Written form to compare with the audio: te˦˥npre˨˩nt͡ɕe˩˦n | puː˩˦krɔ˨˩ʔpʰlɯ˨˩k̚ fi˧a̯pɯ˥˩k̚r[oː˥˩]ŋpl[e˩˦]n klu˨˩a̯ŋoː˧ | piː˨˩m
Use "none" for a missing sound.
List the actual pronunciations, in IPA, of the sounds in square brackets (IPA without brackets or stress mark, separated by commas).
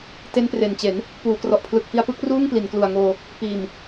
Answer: uː˥˩, i˩˦